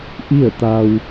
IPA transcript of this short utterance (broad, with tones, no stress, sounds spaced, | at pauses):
ʔ i˥˨ ə̯ t̪ a˧ w